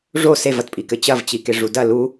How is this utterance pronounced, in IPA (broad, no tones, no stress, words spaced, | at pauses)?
ʐo sevɐtpʼikɘ t͡ɕɐvt͡ɕike ʐudɐ lu